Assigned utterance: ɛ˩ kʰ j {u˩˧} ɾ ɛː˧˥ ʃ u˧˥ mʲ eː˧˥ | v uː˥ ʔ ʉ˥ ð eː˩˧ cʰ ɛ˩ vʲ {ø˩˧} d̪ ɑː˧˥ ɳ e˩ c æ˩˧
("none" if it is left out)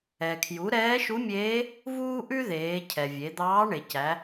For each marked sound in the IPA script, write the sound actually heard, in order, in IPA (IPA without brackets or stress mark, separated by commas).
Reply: u˩˧, e˩˧